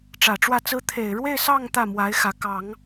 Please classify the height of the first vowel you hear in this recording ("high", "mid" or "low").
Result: low